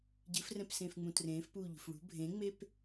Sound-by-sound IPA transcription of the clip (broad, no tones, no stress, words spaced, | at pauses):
ɟɨfrɛ̃psẽːfŋ͡mũ trẽːfpuːʎṳf ɭṳ bʱẽŋ͡mep